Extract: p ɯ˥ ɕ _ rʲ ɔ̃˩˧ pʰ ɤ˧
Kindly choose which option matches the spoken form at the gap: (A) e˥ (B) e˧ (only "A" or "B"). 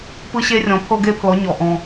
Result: A